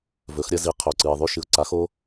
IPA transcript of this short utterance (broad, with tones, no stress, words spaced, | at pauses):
vɵ˩˧xɾʲɐ˧zi˩˧ qʰɵ˩ǀɨ˩ɪ̯ðˤʉ˧ ʃɨ˩ʊ̯ǀa˩˧xo˧